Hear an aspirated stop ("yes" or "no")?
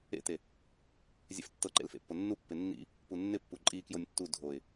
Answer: no